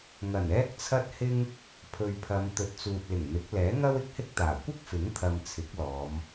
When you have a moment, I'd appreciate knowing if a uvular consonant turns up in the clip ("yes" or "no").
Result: no